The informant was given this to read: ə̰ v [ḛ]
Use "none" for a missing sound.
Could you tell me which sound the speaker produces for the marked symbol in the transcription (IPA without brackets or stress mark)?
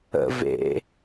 ḛ